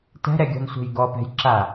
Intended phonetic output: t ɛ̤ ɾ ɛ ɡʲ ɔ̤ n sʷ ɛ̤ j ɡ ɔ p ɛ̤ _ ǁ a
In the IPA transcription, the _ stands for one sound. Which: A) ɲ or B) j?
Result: B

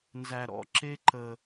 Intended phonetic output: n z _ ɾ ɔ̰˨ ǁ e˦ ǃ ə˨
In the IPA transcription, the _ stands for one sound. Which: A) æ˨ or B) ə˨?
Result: A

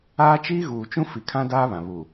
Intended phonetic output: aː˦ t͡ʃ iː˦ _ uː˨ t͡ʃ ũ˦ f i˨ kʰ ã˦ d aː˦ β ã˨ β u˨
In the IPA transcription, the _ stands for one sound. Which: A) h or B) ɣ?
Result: B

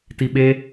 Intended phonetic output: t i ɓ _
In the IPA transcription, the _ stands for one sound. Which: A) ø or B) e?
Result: B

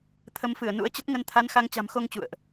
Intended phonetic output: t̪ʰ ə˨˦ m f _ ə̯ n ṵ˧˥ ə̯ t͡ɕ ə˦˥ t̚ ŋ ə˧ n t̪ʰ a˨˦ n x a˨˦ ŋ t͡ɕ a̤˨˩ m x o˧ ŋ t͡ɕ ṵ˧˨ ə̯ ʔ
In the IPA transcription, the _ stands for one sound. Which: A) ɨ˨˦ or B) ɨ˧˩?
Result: B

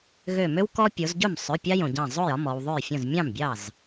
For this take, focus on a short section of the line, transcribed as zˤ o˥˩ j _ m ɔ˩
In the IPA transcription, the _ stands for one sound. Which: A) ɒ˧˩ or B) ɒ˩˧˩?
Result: B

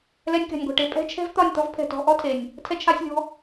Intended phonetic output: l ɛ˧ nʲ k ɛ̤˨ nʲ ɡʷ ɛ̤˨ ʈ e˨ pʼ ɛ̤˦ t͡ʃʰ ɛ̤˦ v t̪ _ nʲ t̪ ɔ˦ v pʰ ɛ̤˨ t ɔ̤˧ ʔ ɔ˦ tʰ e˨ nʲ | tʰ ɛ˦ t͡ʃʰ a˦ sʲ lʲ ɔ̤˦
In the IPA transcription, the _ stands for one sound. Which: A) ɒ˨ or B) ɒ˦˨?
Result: B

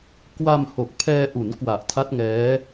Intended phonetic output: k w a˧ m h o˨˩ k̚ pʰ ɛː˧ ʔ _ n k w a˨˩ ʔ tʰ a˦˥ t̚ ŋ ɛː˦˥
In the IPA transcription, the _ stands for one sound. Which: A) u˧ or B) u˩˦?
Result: B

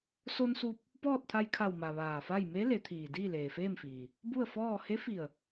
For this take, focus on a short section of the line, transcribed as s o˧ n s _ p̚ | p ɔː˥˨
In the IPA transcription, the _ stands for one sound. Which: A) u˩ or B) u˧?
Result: B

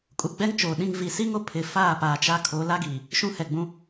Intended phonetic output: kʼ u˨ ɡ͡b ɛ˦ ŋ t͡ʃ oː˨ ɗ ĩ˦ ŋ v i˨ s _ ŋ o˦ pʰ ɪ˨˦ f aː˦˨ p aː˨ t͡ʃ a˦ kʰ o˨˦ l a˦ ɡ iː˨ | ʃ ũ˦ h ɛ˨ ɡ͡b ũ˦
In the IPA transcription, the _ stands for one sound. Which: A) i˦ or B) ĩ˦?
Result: A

